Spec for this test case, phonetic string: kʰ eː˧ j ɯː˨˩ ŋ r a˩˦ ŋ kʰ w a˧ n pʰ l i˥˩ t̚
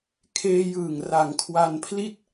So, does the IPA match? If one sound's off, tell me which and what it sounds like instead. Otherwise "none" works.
none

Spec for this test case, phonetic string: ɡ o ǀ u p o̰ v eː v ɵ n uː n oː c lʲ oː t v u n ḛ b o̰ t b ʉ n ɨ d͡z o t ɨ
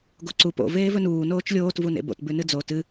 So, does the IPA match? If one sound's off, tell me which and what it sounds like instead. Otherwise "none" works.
c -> t͡ʃ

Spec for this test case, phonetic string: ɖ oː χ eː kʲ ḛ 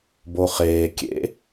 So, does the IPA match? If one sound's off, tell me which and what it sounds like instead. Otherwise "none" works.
ɖ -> b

